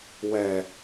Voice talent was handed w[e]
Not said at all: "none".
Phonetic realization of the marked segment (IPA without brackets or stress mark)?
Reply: ɛ